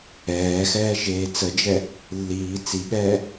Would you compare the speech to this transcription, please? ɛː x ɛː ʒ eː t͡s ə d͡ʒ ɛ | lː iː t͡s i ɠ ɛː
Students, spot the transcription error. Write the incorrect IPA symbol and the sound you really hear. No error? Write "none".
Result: none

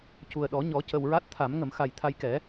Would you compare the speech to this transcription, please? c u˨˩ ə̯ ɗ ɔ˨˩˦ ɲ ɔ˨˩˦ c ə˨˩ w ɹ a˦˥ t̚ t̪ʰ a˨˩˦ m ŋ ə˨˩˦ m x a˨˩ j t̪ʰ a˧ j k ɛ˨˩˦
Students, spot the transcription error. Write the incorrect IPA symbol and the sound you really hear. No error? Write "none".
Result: none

